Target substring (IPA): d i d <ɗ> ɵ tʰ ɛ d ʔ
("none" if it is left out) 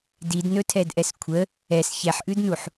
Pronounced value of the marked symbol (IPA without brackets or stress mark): n